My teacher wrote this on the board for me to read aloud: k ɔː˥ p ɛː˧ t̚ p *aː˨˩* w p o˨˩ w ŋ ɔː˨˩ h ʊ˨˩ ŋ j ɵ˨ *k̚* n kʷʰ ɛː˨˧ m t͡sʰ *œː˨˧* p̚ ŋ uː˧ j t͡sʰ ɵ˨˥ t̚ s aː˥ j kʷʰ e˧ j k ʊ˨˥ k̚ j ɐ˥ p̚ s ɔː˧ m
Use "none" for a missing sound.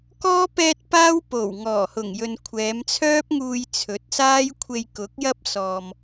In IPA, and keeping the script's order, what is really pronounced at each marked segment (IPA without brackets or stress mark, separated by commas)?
aː˥, none, œː˥